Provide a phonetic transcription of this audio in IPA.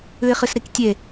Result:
ʉɪ̯χɨsɾiktʲe

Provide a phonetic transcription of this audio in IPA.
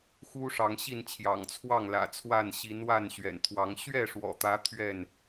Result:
xu˦ʂɑ˨˦ŋɕi˥˨nt͡ɕʰjɑ̰˨˩ŋ t͡sʰwɑ˥˨ŋlä̰˨˩t͡sʰwa˥˨n ɕi˨˦nwa˥˨n ɕɥɛ̰˨˩nt̪ʰwɑ˨˦ŋ ɕɥɛ˥˨ʂwɔ̰˨˩t̪ä˨˦ t̪ʰɥɛ˥˨n

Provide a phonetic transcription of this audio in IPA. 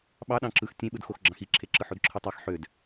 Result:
ɓɑ ɗɑ̃ǁɯx tʲẽɓɯdxox ɡ͡ǁɑ̃xiǁʰeǁɯ ħodǁʰɯtˤɑx ħød

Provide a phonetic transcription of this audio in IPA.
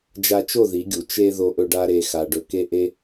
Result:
d͡ʒa˧t͡ʃo˦˨ ði˨˦ɡʲu˨ t͡ʃe˧ ðo˧ʔɵ˧ɖa˧ ɾe˨ xa˨ ɖɵ˨ke˧ ʔe˦

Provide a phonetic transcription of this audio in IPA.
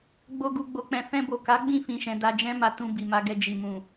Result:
ɡ͡bo˧ ɡu˨ɡ͡bo˨k͡pɛ̃˨ fɛ̃˧bo˨ka˨˦ ɡ͡bĩ˦˨ fĩ˨ʃɛ̃˨ da˧d͡ʒɛ̃˦ma˧ tũ˧bi˨ma˧ ɡɛ˧d͡ʒi˨ mũ˨

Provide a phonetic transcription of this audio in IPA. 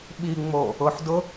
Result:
ɓiŋ͡mo | ʊħdʊ

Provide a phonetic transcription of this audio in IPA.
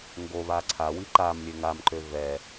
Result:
ŋɡoβa ǀʰawi ǃam lʲøŋamǃø vɛ

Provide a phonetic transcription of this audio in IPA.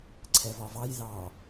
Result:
ǀʰɛvɒvɑj ðɑ

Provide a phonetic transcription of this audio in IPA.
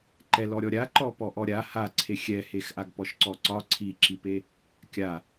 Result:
ǃɛlɔ ɾʲɔɾʲaǃɔ pɔʔɔɾʲa haǀʰe xʲɛhex ʔaɡpɔʃǀɔǀɒ ǀʰiǁipe | kʲa

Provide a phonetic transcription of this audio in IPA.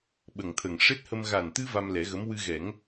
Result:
ɓə˨˩ŋt̪ʰə˨˩ŋ ʂe˦˥t̚hə˧m ɣa˨˩nt̪ɨ˧ va˧mlɛ˨˩˦ɣə˧˥m wɨ˧ɣɛ˨˩˦ŋ

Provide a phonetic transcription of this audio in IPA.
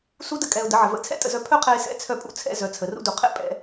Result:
su˦də˧ kʼɛ˧ʊ̯də˨˦ʕə˨ və̰˧t͡sʰɛ̰˦tʼə̰˧zœ˧ pʰœ˦qʰɛ˧ɪ̯sɛ̰˧t͡sʰœ˧ pʼṵ˧t͡sʰɛ̰˧zœ˨ t͡sʰə˨rṵ˦du˨ qʰɛ̰˦ pʼɛ̰˧

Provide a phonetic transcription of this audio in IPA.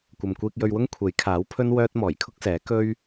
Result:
kʷɐ˨mkʷiː˧k̚jɵ˧ɥwʊ˥ŋ kʷʰe˨˥jkʰaː˨˥wpʰɵ˥n wœː˥t̚ mɔː˨˩jkʰʊ˥k̚sɛː˨˥ kɵ˥ɥ

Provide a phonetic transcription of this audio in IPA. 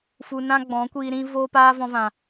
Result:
fu˧nã˦ ɡ͡bɔ̃˨˦kʷiː˧ ɾĩ˦ voː˦paː˦vɔ̃˧vã˨

